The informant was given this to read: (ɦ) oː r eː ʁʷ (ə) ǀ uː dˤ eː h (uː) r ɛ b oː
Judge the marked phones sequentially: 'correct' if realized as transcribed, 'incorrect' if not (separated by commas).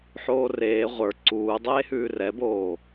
incorrect, incorrect, incorrect